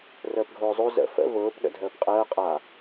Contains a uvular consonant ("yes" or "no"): yes